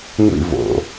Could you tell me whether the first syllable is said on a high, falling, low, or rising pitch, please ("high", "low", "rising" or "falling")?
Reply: falling